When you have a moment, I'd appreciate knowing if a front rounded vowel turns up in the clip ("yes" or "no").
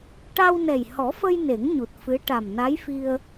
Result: no